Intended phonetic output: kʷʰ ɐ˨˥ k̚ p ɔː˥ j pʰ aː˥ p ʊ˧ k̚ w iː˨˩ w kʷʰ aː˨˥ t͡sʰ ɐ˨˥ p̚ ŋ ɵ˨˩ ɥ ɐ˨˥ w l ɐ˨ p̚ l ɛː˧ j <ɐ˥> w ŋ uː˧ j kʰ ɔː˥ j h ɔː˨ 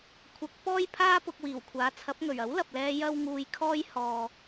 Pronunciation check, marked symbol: correct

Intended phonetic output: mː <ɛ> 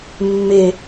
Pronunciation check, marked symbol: incorrect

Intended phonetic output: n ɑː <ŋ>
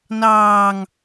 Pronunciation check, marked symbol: correct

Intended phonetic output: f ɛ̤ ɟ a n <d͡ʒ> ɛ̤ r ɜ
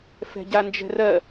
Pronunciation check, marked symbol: correct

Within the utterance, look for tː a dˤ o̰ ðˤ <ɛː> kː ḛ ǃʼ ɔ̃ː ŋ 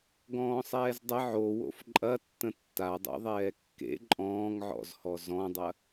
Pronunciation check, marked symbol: correct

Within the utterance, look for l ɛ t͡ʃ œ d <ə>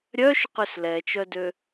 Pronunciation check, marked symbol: incorrect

